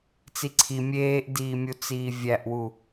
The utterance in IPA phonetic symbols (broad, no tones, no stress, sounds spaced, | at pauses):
t͡s i ǀʰ i mʲ eː ʔ d iː mʲ u t͡s iː vʲ æ ʔ w u